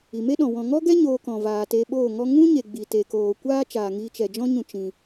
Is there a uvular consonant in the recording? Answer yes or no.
no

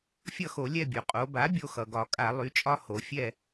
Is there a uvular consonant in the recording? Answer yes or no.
yes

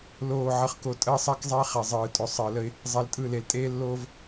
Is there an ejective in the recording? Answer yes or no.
yes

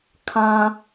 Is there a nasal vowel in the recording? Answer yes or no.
yes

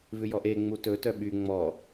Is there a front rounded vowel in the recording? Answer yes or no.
yes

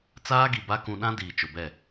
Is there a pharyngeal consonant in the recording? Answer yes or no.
no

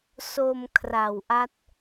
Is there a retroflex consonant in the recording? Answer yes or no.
no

